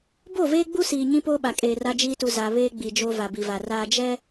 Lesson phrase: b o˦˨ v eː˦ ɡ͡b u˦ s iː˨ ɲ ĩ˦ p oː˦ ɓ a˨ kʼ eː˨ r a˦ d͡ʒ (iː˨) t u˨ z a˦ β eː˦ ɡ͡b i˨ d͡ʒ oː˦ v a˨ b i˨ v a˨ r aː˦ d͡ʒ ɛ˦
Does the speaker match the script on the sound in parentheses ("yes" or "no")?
no